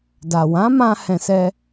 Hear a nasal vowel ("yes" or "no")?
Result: yes